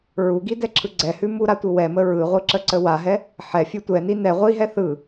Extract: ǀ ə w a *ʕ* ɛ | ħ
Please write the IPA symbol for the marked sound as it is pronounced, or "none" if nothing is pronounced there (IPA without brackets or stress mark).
ɦ